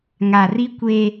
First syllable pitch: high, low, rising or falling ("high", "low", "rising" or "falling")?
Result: low